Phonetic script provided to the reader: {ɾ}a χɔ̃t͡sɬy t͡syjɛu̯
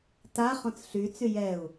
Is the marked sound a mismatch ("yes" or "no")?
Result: yes